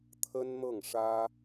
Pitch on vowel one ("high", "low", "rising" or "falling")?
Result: high